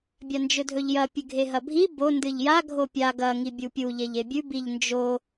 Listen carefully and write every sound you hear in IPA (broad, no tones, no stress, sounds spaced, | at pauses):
bʲ a n d͡ʒ ɵ dʱ ɵ ʎ j ɐ pʲ ɨ ɡʱ e ɦ ɐ bʱ i b o n d ɨ ʎ j a ɡʱ o pʲ a ɡ ɐ ŋ i bʲ u pʲ u ʎ e ʎ e bʲ ʉ b i ʎ n d͡ʒ o